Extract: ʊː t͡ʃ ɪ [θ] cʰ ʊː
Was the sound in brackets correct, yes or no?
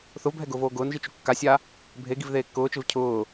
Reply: no